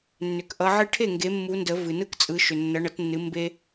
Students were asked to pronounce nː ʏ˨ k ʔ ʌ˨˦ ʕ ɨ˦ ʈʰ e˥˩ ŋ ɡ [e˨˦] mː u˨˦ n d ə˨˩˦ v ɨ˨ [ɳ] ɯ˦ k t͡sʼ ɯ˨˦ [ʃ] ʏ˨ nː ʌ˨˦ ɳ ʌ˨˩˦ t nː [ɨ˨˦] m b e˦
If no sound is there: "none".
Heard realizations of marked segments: e˨˦, n, ʃ, ɨ˨˦

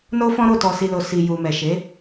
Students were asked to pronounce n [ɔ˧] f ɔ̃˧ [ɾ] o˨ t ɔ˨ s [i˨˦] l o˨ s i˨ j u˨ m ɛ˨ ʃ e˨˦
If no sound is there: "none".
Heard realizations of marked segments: o˧, ɾ, i˨

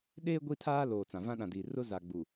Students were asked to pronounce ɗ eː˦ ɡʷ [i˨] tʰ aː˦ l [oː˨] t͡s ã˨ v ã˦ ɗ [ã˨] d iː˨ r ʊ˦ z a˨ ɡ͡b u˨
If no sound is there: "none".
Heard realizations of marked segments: i˦, oː˨, ã˨

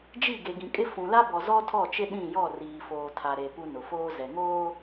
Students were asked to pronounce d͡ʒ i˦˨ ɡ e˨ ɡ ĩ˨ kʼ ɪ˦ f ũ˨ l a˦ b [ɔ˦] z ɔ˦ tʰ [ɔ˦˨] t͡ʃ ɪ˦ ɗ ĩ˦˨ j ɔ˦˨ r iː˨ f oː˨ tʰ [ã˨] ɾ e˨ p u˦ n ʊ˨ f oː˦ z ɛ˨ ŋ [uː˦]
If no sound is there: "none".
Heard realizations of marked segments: ɔ˨, ɔ˦˨, a˨, oː˦

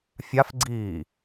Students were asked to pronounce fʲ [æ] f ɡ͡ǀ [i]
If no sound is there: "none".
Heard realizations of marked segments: a, iː

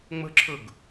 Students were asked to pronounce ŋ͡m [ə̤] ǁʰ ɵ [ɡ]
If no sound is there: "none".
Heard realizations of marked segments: ə̤, ɡ

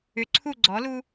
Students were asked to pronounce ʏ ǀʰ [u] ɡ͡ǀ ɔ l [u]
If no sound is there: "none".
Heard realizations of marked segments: u, u

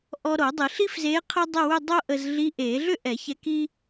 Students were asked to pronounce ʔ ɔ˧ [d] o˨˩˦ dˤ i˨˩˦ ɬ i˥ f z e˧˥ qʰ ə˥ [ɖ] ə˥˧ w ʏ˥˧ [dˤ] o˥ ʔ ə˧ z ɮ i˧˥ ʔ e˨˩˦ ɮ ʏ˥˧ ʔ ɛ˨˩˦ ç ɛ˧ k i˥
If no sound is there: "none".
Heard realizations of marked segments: ɾ, dˤ, dˤ

